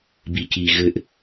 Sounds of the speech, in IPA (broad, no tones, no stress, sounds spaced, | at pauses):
b i c i ɣ ɘ ʔ